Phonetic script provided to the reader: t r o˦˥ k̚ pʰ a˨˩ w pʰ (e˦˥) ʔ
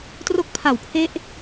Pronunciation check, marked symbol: correct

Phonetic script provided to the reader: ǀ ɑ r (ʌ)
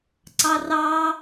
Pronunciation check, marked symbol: incorrect: ɑ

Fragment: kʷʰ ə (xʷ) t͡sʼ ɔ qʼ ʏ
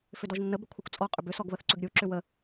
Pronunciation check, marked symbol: incorrect: kʷ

